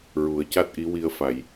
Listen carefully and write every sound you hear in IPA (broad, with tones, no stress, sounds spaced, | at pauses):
ɹ u˨˩˦ ə̯ c a˦˥ t̚ ʔ i˧˥ w i˧ ə̯ f a˨˩˨ j